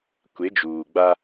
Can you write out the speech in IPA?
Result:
kʷ e˨˦ d͡ʒ uː˨ ɡ͡b a˦

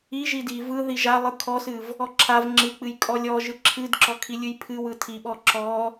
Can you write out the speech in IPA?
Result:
i ʒ i d i v ɯ ð i ʒ a lˠ ɯ kʰ ɔ s ɨ v | ɔ ǁʰ a v ŋ͡ǁ ɨ k͡p ɨ j kʼ ɔ lʲ ɔ ʒ ɯ ǁʰ ɨ d ǁ ɔ kʰ i lʲ ɨ j pʰ ɨ w ɯ tʰ i ɓ ɔ ǁ ɔ

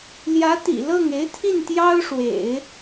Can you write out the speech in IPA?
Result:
l j ä˧˥ t̪ ḭ˨˩ l ɤ˥˩ ŋ e˧˥ ɪ̯ t̪ʰ i˥˩ n t̪ j ɑ˥ ʊ̯ ʂ w ḛ˨˩˦ ɪ̯

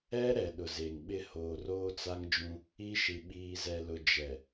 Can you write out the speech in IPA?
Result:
ɛ˦ ɾ ɛ˨ ɗ ʊ˨ z e˨ ŋ ɓ ɪ˦ h oː˨ r oː˦ t͡s a˦ ŋ d͡ʒ ũ˦ | i˦ ʃ i˨ ɓ iː˨ z ɛ˨ l ʊ˨ d͡ʒ ɛ˨

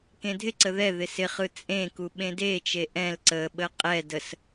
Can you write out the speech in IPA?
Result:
k ẽ dʱ ɪ ǀ ə ð ɛ ð ɪ s ɪ χ ɯ t͡sʼ ẽ k u ɓ ẽ d e t͡ʃ e ʔ ɛ̃ l ǀ ə ɓ ə qʼ ɛ d ə s

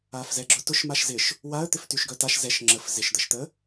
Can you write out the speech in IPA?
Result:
a f z ɛ ɡ͡ǁ ʊ t ʊ ʃ m a ʃ z ɪ ʃ | w a ə̯ t̪ ɪ f t y ʃ ɡ œ t a ʃ z ɛ ʃ ŋ͡ǁ ə f z ɪ ʃ d̪ ə ʃ t̪ ə

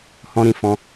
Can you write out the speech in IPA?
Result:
h ɔ̃˦ ɾ ĩ˧ f ɔ̃˦

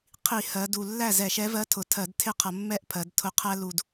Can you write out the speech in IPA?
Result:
qʰ i˧˩˧ h ɜ˩˧ d u˨˩ lː æ˥˩ z ɛ˧˩˧ ʃ ɛ˨˥ v ɜ˨˥ tʰ ʊ˨˩ tʰ ɜ˧˩˧ d tʰ ɪ˥˩ qʰ ʌ˧˩˧ mː ɛ˥˩ ʔ pʰ ɜ˩˧ d tʰ ʊ˧˩˧ qʰ æ˦ l u˨˩ d

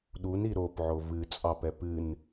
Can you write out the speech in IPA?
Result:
ɗ u n i ɾ o p ʕ o v ɨ t͡sʼ ɑ p ɛ p ɨ n

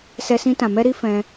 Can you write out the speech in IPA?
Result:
s ɛ˧ s ĩ˧ t ã˨ m ɛ˧ ɾ i˦ f ɛ̃˧

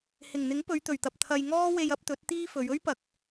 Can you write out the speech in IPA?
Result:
h ɪ˨˩ ŋ n̪ ɪ˨˥ ŋ p ɵ˨˧ ɥ t̪ ɵ˨˩ ɥ t̪ ɐ˨ p̚ t̪ʰ ɐ˨ j ŋ ɔː˥ w e˧ j ɐ˨˥ p̚ t̪ ɵ˨˥ t̚ t̪ iː˥ f ɵ˨˧ ɥ ɵ˥ ɥ p ɐ˨ k̚

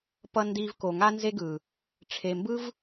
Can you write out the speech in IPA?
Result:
p ʌ˧ n d i˧ v k o˨ ŋ a˦ n z e˦ ɡ ɯ˨ | ʈ͡ʂʰ e˨ m b ɯ˦ v

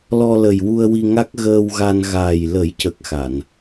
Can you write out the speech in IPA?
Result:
l ɔ˧ l ə˨˩ j w u˧ ə̯ w i˧ ŋ a˦˥ k̚ ɣ əː˧ w ɣ a˧ n ɣ aː˨˩ j l ə˨˩˦ j c ə˨˩ k̚ x a˨˩˨ n

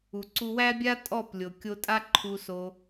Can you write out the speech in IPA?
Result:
u˨ ǀ u˧ w æ˦ bʲ a˦ tʼ ɔ˦˨ p lʲ o˨ kʲ o˧ tʼ a˦ ǃʰ u˧ s o˧

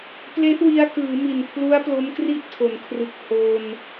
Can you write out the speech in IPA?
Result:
p l e˦˥ ʔ w i˧ a̯ k ɯː˩˦ m i˨˩ n pʰ l u˦˥ a̯ p l o˦˥ m k r i˥˩ ʔ tʰ o˩˦ n kʰ r ɯ˨˩ k̚ h o˧ n

